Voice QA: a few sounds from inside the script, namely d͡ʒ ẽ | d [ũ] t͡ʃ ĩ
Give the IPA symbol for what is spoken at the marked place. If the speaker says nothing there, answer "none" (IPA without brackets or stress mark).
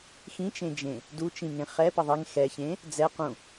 u